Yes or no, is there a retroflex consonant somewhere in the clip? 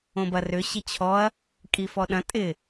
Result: no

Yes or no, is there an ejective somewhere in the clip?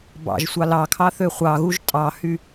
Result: yes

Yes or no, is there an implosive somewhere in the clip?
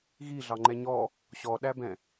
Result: yes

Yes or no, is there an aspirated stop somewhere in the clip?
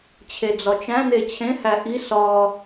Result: yes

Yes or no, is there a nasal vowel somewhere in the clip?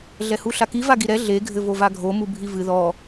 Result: no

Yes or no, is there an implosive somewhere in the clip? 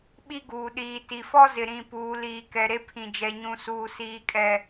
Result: yes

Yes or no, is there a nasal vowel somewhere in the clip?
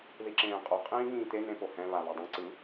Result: yes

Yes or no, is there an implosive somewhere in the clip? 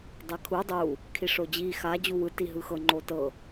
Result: no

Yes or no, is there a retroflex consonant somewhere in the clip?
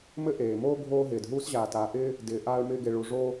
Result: yes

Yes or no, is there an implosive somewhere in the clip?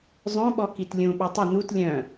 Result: yes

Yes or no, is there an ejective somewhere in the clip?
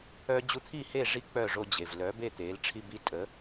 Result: yes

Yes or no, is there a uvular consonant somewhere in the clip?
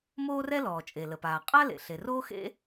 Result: yes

